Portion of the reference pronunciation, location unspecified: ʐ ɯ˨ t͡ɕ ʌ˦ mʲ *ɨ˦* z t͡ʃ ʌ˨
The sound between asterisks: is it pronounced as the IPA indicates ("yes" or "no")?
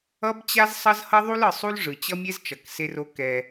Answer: no